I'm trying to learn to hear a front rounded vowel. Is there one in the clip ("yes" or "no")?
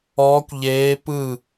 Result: no